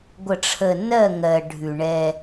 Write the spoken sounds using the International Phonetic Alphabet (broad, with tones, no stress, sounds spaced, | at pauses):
ɡʷ ə˨ ʈ͡ʂʰ ə˨ n ɜ˦˨ ŋ ɜ˨ ɖʱ ʉ˨ ɳ ɛ˦